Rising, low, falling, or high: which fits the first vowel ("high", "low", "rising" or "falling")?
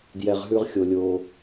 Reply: low